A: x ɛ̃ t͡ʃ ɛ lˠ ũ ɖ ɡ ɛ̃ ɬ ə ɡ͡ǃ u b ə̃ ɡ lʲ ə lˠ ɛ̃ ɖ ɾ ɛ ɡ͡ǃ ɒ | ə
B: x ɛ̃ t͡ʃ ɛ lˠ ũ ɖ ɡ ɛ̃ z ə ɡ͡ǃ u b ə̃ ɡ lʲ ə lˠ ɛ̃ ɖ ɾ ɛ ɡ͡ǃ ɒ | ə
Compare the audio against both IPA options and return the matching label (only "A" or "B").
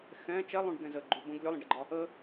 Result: B